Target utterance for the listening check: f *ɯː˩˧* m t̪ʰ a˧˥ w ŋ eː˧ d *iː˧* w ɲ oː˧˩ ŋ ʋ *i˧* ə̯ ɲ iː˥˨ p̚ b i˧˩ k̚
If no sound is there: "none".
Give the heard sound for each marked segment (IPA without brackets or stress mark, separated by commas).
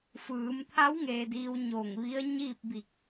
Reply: ɯː˩˧, iː˧, i˧˥